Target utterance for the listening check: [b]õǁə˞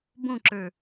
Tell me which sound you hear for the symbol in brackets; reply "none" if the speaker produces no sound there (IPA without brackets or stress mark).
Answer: b